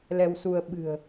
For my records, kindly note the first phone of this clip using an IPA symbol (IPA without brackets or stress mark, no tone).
l